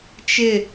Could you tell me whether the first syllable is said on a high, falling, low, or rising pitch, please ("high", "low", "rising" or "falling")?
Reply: falling